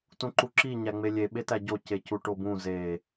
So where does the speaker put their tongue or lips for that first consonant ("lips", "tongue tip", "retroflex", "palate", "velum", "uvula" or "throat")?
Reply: tongue tip